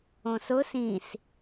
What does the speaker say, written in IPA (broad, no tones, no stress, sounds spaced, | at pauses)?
õ s ʊ s ĩ s